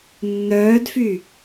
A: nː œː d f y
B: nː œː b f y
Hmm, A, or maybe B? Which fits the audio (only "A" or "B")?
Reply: A